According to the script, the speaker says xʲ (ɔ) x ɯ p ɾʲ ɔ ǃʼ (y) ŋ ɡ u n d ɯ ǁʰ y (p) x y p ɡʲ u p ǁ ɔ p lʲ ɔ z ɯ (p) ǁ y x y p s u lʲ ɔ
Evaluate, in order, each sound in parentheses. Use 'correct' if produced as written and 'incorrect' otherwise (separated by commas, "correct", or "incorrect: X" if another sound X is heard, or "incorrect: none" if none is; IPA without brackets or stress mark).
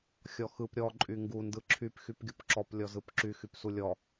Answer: correct, correct, correct, correct